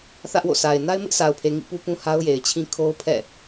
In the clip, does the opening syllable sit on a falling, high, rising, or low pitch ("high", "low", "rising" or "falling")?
high